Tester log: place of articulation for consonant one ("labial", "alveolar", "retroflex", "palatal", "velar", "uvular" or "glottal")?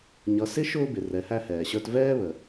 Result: palatal